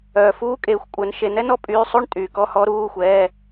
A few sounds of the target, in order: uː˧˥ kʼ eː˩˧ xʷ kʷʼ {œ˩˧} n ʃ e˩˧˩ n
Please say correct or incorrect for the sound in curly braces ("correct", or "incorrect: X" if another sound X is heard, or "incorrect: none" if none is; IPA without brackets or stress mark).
correct